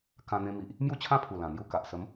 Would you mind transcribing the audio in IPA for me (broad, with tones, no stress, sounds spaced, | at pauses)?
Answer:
k ã˧ n̪ ẽ˧ m i˨ ʔ | m j u˥˧ t͡ɕʰ ã˥˧ pʰ u˨˩ l ã˨˩ n̪ j u˥˧ k a˨ ʔ s ə˨˦ m